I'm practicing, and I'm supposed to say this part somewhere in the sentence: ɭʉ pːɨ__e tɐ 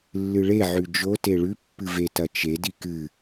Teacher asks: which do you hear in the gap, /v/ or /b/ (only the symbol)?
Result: v